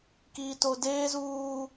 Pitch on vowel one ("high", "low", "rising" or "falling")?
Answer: high